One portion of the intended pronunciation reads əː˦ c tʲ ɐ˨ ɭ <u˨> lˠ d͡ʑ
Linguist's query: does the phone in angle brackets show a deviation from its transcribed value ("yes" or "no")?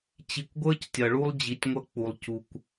yes